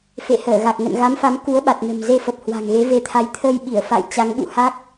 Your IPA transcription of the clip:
f ḛ˧˨ h əː˧˩ ɣ a˨˩ k̚ ŋ ə̰˧˨ n ɣ a˨˦ m f a˨˦ m k u˨˦ ə̯ ɓ a˨˩ t̚ n ə̤˨˩ m z e˧ f ə˨˩ p̚ h w a̤˨˩ ŋ ɣ e˨˦ v e˨˦ t̪ʰ a˨˦ j t̪ʰ əː˧ j ɓ i˧˩ ə̯ f a̰˧˨ j t͡ɕ a˨˦ ŋ ɓ ṵ˧˨ h a˦˥ k̚

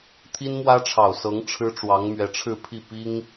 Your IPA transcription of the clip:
t̪ʰ i˥ n m w ä˥ ʈ͡ʂʰ ɑ˨˩ ʊ̯ s ɤ˧˥ ŋ ʈ͡ʂʰ ɻ̩˥ ʈ͡ʂ w ɑ˧˥ ŋ m ɥ ɛ˧˥ ʈ͡ʂʰ ɻ̩˥˧ pʰ i˥˩ p i˥ ŋ

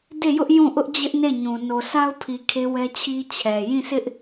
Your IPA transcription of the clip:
d e˦˨ j ʊ˦ ʔ j ũ˦˨ ʔ ʊ˦ ʔ d͡ʑ ɪ˦ ʔ n e˦˨ ɲ ũ˨ n o˨ s a˦ ʊ̯ pʰ i˨ kʰ e˦ w ɛ˦ t͡ɕʰ i˦ t͡ɕʰ ɛ˨ j ĩ˦˨ s ɪ˦ ʔ

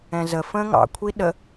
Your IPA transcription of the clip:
ɛ̃ z ə f ə̃ː ŋ ɑ̰ kʷʰ i ɗ ə

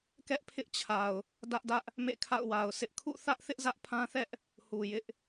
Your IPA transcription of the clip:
k ɛ˦ ʔ pʰ ɪ˦ ʔ t͡ɕʰ a˨ ʊ̯ | d ä˦ ʔ d ä˦ ʔ | m ḛ˦˨ kʰ a̰˦˨ ʊ̯ w a˨ ʊ̯ s ɪ˦ ʔ kʰ ṵ˦˨ θ ä˦ ʔ θ ɪ˦ ʔ z ä˦ ʔ pʰ ã˦ θ ɛ˦ ʔ | h u˨ j ɪ˦ ʔ

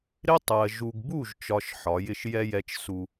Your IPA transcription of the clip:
ɾ ɪ˦ tˤ ɜ˨ ʒ u˨ ɡ b u˦˨ ʒ t͡ʃ ɒ˨ ʃ ħ ɒ˨˦ j ɪ˦ ʃ j ɛ˦ j ɛ˦ t͡ʃ s u˦

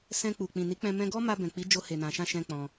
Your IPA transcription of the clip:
s ɛ̃˧ k͡p u˨ k͡p ĩ˨ n i˨˦ k͡p ɛ̃˧ m ɛ̃˧ ɡ ɔ˦ m a˧ b ɛ̃˨ k͡p i˨˦ d͡ʒ o˧ h e˨ n ã˨ ʃ ã˧ ʃ ɛ̃˦ k͡p ɔ̃˧

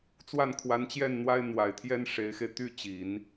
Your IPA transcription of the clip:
t͡s w a˥˩ n kʰ w a˧˥ n t͡ɕ j ɛ˥˩ n n̪ w a˥ ɪ̯ n̪ w a˨˩ ɪ̯ t̪ʰ j ɛ˥ n ʂ e˧˥ ɪ̯ x e˧ ɪ̯ t̪ y˥˩ t͡ɕ i˨˩˦ n

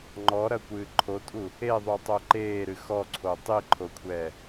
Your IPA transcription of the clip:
ŋ͡ǃ ɔ ɾ ɐ kʷ ɨː ǃʰ o tʼ u | e ðˤ u tˤ o ǃ eː ɾ ɨ x ɔ ǀʰ o tˤ i ǃʰ o kʷʰ ɛː

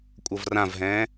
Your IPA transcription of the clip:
kʷʼ ʌ v r ã v ɦ ɛ̃ː

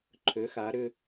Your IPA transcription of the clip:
ǃʰ ø˩˧ x a˩˧ ɾ ʏ˧

